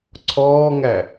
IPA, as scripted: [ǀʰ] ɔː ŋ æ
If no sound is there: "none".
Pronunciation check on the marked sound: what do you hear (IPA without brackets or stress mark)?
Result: ǀʰ